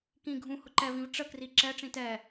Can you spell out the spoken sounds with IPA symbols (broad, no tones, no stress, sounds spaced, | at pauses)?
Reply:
k ĩ ɡʱ ũ h ʊ ǃ ɛ v ĩ v ʈ͡ʂ ə k r i ǁ ɛ ʈ͡ʂ ĩ t ɛ